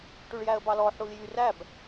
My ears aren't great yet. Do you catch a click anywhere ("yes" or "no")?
no